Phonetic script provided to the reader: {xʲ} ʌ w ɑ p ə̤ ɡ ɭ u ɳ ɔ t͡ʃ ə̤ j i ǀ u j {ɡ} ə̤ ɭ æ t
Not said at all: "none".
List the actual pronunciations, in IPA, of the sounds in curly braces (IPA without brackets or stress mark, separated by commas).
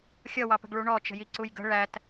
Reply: xʲ, ɡ